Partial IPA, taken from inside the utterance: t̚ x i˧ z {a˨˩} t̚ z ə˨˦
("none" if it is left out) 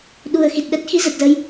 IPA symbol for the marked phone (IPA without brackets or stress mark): ə˨˩